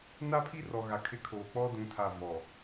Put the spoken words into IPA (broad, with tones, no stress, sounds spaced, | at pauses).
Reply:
n a˦ pʰ i˦ r ɔ˨ ɣ a˨ kʰ ɪ˦˨ kʰ oː˨ k͡p ɔ˦ d ũ˨˦ tʰ a˦˨ v ɔ˨